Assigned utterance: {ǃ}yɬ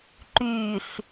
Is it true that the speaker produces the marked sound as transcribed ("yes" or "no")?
yes